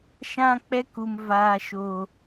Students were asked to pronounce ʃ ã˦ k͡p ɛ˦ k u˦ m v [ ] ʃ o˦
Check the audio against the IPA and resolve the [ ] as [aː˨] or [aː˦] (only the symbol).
aː˦